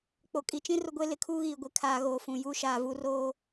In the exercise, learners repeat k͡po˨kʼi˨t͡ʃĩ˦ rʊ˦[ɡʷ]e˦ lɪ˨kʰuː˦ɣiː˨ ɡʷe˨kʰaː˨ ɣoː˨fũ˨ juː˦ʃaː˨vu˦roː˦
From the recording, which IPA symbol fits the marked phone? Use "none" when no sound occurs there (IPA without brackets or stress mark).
ɡʷ